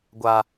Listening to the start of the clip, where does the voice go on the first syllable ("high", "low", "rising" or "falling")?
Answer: high